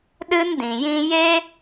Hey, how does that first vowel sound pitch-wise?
high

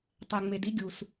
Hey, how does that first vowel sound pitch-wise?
low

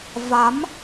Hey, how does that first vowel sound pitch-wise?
rising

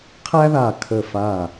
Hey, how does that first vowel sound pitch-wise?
high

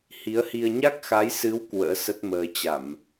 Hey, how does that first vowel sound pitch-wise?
rising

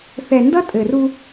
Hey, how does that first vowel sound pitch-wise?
low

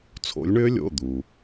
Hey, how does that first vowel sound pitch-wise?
rising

